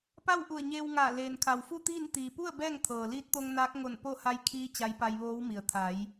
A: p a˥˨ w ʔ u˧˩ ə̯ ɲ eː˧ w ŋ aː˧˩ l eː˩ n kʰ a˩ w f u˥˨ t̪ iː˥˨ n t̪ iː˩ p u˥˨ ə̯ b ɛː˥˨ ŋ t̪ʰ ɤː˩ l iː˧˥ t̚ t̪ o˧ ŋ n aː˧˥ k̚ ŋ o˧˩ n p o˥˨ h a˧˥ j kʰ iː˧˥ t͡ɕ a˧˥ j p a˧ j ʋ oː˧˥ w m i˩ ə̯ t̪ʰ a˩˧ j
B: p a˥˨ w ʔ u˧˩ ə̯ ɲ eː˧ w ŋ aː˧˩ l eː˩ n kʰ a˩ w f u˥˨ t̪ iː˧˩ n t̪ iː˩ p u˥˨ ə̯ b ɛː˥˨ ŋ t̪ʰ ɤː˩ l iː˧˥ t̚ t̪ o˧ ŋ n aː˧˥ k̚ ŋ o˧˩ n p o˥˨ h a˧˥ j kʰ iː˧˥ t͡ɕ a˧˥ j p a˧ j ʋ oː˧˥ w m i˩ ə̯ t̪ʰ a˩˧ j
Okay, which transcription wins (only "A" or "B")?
A